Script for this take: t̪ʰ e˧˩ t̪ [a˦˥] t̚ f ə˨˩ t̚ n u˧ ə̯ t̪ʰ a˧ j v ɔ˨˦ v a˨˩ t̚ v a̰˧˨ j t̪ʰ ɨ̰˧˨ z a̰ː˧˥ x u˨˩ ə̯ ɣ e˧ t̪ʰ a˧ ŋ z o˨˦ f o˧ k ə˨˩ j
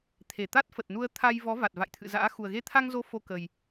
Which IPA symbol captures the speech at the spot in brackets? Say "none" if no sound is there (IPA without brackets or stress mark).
a˦˥